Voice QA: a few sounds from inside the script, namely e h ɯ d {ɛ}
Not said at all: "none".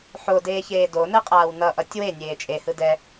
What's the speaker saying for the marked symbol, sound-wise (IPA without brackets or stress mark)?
ɛ